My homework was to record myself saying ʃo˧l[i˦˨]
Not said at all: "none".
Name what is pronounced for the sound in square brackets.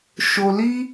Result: i˦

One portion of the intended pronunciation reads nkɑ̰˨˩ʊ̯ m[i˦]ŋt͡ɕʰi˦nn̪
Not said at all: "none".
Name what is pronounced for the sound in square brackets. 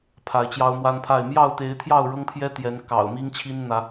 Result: i˦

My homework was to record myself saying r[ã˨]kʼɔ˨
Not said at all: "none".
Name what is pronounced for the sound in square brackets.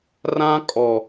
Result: ã˦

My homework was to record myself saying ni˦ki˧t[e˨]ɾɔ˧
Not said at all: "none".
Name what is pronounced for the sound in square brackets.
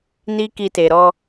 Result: e˨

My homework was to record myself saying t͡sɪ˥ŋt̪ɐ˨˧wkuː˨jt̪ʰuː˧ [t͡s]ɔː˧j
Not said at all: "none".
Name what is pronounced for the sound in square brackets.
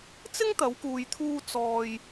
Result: t͡s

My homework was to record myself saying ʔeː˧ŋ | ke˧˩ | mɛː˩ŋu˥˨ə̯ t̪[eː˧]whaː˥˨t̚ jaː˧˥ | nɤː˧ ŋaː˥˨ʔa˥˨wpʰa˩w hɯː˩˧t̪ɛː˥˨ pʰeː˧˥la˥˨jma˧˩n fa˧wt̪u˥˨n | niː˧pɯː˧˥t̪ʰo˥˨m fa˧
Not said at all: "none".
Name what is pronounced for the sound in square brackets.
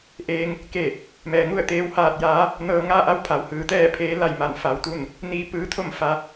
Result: eː˧˥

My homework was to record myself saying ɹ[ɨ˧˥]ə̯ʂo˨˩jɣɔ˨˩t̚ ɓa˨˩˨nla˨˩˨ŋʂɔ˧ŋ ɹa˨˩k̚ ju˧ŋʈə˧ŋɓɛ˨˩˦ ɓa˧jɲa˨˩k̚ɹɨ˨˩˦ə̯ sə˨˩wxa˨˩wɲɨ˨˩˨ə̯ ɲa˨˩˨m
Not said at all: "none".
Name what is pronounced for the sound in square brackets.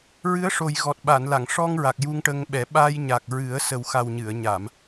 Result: ɨ˧˥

